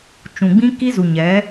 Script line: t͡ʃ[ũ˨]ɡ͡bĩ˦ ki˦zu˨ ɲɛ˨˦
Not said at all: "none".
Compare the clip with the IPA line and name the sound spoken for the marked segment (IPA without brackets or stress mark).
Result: ũ˨